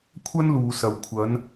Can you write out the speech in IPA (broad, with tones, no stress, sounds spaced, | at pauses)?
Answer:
kʷʰ ɐ˥ n l uː˨ s ɐ˨ w kʷʰ ɐ˨˧ n